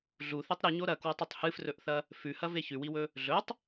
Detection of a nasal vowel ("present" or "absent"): absent